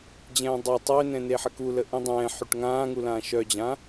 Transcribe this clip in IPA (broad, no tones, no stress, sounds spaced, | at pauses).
d͡ʑ ɛ̃ː dˤ a tˤ ø n ɛ̃ n e ħ ə k u l ə ʔ ĩ dˤ ɛ̃ː ħ y ʈ ŋ ãː ŋ u l ãː ʃ œ d͡ʑ ã